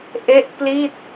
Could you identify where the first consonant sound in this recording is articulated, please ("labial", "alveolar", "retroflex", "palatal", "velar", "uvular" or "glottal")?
glottal